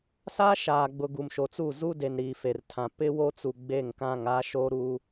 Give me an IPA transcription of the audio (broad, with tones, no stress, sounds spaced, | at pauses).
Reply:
s a˦ ʃ aː˨ ɡ͡b ʊ˨ ɡ u˨ m ʃ o˨ t͡s u˦˨ z u˦ d e˨ n ɾ iː˨ f e˨ r tʰ ã˨ p ɪ˦ w o˦ t͡s u˨ ɡ͡b e˦˨ ŋ k ã˦˨ ŋ a˦ ʃ o˦ ɾ u˦